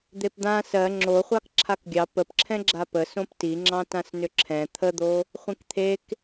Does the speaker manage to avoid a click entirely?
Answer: no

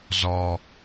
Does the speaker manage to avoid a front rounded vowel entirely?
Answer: yes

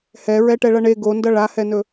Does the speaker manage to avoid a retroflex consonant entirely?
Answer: no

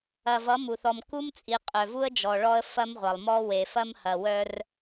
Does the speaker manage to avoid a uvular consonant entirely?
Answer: no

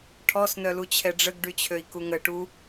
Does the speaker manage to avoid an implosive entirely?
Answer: yes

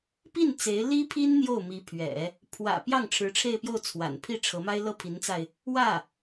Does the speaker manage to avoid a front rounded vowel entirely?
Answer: yes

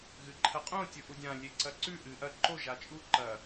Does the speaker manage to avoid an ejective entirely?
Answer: no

